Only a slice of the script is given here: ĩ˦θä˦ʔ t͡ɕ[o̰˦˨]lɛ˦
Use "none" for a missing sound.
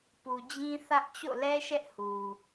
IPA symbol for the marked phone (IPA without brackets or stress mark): o̰˦˨